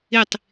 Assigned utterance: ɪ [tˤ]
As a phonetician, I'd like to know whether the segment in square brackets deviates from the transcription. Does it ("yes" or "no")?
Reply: no